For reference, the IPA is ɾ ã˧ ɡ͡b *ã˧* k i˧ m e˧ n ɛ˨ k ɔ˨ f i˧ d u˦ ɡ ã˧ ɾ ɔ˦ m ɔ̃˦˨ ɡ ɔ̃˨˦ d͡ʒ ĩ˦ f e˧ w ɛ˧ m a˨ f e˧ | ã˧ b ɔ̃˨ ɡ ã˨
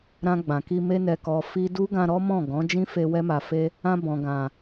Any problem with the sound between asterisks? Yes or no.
yes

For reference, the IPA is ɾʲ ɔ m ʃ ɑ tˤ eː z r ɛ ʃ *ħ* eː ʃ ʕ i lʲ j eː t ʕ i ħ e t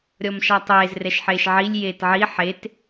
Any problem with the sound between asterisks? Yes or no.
no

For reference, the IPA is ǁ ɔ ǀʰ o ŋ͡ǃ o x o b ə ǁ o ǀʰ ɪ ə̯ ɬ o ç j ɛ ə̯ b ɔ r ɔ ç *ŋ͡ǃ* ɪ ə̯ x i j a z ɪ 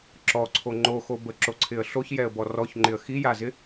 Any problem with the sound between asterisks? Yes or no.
no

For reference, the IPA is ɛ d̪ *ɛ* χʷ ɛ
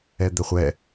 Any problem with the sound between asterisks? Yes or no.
no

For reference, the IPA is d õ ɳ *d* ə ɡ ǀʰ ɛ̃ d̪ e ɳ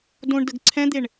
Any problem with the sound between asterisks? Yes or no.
no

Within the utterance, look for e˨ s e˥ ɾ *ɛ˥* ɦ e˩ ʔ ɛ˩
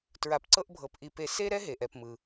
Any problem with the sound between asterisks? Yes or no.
no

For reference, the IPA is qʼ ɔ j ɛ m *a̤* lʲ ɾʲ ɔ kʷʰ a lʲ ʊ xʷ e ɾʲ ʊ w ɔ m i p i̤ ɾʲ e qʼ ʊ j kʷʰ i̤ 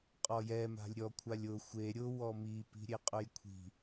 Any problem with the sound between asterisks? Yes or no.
no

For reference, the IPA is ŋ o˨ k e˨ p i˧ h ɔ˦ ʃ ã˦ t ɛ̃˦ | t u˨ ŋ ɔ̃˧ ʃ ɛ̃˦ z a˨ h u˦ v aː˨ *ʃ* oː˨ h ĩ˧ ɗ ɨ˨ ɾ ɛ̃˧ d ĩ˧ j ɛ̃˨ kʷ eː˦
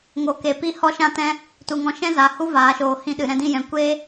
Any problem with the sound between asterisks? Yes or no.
no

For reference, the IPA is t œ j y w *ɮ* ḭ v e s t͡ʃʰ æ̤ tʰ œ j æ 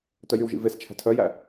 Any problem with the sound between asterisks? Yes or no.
yes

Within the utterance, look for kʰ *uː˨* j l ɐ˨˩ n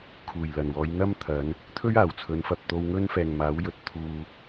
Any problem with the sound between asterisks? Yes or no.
yes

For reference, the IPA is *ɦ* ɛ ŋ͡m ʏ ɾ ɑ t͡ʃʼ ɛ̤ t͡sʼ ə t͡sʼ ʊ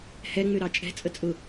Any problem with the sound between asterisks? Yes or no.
yes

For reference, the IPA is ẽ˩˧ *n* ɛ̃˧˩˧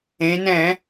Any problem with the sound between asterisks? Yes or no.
no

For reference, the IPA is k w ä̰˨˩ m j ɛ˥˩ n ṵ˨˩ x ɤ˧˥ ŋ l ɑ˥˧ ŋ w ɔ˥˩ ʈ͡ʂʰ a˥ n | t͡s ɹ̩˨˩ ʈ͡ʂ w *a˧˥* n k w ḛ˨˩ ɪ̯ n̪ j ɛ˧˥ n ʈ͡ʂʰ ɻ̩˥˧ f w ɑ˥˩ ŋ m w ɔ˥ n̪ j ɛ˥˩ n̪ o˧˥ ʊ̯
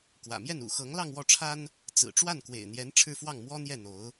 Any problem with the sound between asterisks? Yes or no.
yes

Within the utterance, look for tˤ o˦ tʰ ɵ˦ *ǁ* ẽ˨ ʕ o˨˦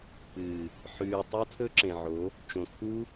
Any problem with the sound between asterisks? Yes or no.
no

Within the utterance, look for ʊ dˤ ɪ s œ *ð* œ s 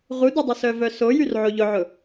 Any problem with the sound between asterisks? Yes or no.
yes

